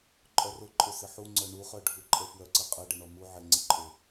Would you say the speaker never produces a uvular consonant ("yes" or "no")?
no